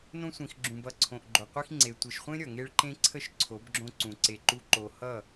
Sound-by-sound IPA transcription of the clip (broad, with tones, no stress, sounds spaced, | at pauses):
n õ˧ sʷ ĩ˨ x ɡ͡ǁ ũ˨ b ʌ˨ ǀʰ õ˨ ʔ ɡ͡ǃ o˨ qʷ i˧ x ŋ͡ǀ e˨ tʷ e˨ ʃ χʷ ẽ˧ ɾʲ ʌ˨ ŋ e˧ ɭ ǃ ẽ˧ ǀʰ ə˧ ʃ ǀʰ o˨˦ b ɡ͡ǁ õ˧ ǀ ũ˨ ǀ e˧ ǃ u˦ ǃ o˧ h ʌ˦˨